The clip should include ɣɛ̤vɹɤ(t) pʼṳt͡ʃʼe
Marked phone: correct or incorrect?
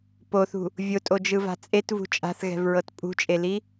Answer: correct